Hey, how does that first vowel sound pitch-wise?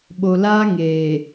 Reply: low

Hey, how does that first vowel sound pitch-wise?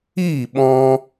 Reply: falling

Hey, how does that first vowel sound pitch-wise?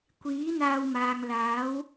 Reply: rising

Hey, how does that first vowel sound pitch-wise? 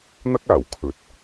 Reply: high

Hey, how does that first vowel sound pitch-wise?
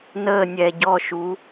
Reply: falling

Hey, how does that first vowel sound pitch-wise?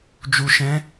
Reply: low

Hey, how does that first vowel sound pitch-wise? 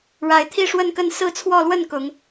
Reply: rising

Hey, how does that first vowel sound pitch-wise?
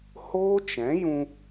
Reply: high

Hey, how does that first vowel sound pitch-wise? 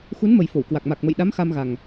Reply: rising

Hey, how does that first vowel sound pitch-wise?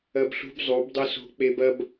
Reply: high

